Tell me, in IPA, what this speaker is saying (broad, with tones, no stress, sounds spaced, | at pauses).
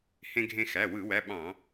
h ẽ˧ ɡʱ ẽ˧ x æ˩˧˩ w ɯ˧˩˧ w æ˩˧˩ ɓ ɑ̃˧˩˧